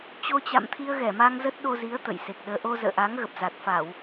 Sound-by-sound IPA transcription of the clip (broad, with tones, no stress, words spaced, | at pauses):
t͡ɕo˧t͡ɕa̰˧˨mt̪ʰi˧ə̯ ɣɛ˧˩ma˧ŋzə˦˥t̚ ɗo˧zi˨˦ə̯ t̪ə̰˧˨jse˨˩k̚ɗəː˧ ʔo˧zə̰ː˧˨ʔa˨˦ŋɣə˨˩p̚ za˨˩t̚ fa˧˩˨w